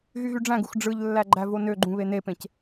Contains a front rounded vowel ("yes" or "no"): yes